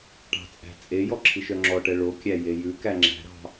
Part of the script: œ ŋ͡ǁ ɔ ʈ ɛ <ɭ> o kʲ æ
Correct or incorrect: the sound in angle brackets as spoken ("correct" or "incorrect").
correct